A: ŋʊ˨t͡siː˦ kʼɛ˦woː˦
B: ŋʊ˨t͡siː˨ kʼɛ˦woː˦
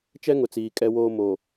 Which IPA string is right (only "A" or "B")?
B